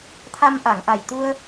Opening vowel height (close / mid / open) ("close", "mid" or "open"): open